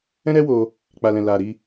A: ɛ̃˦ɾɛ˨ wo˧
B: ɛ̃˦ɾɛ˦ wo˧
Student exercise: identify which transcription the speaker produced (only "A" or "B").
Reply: B